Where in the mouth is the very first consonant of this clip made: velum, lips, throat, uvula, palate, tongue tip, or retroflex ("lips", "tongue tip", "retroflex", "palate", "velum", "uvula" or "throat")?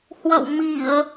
throat